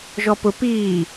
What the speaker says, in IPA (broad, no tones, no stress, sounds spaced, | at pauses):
ʒ ɔ p ʊ p iː